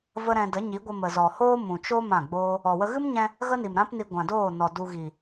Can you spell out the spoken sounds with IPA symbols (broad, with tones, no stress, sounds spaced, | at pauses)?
v ə˦ ɾ ɛ̃˧ d ə˨˦ ɲ i˨˦ ɡʷ ə˧ m ə˨ z ɔ˨ h oː˦ m ũ˨ t͡ʃ o˦ m ã˦˨ ɡ͡b oː˦ | ɔ˨ w ə˦ ɣ ɨ˦ m ɲ ɛ̃˧ | ɣ ə˦ n i˨ m ɾ ã˦ p n i˧ ɡʷ ã˨ d oː˦˨ n ɔ˨ d u˧ ɣ i˨